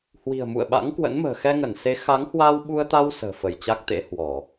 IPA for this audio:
hwi̤˨˩ə̯mṵ˧˨ə̯ɓa̰˧˥ŋ kwə̰˧˥nmə̤ː˨˩ xɛ˧ŋə˧˩nse˨˦ xa˨˦ŋhwa˧wɓu˧ə̯t̪a˧w sə̤ː˨˩fə˧˩j t͡ɕa˦˥k̚t̪ḛ˧˥ hwɔ˧˩˨

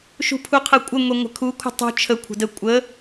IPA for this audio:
ʃṳpʰuqʰəkʷʼɪ ŋʷeŋʷə̤kʰu kʷʰə̤tˤṳ t͡ʃʰə kʷʰə̤də kʷʼə

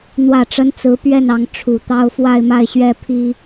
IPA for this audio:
n̪wä˨˩ʈ͡ʂə˧˥n t͡sɹ̩˧˥pɥɛ˥˩nɑ˧˥ŋ ʈ͡ʂʰu˨˩t̪ɑ˥ʊ̯ fwa˥˧ɪ̯ma˥˩ɪ̯ɕɥɛ˥pʰi˥

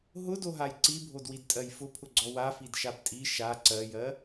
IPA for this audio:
ɦʊdoɦaj ǀibʱodwidtʼɜj fʊpʰʊɡ͡ǀɔ wafidʃab tʼi ʃa ǀɜjɜ

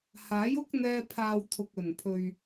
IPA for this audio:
haː˨˥jʊ˥k̚n̪ɛː˧ pʰaː˨w t̪ʰʊ˨k̚ɵ˨˩npʰɵ˨ɥ

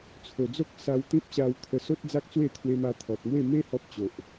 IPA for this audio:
t͡sʰo˨˩d͡zo˦k̚ sa˧wt̪ĩ˦p̚ ɕa˧w t̪ʰə˧ so˦t̚d͡za˦k̚t͡swe˥˧ t̪ʰwe˧ma˧t̪ʰɔ˨t̚mwe˥˧ me˦ hɔ˦p̚t͡ɕo˨ʔ

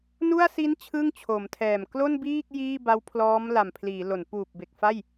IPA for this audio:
nu˥˩a̯si˦˥n t͡ɕʰɯ˥˩ŋt͡ɕʰo˩˦mtʰɛː˨˩m klo˥˩nbiː˥˩k̚ jiː˥˩ba˦˥wpʰlɔː˦˥m la˨˩mpʰliː˩˦lo˩˦n puː˨˩p̚be˨˩k̚fa˥˩j

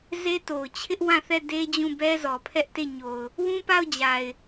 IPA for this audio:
ze˦to˨ʊ̯ t͡ɕʰɪ˦ʔwã˦˨θɛ˦˨ de˦d͡ʑũ˦˨bɛ˦ zɔ˨pʰɛ˦ʔte˦˨ɲo˨ʊ̯ | wũ˦pa˦˨ʊ̯d͡ʑa˨ɪ̯

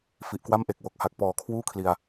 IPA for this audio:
fi˨˩ʔkwa˥˩m ʔe˨˩k̚ wo˨˩k̚ha˨˩k̚pɔː˩˦ kʰwuː˥˩kʰli˨˩a̯

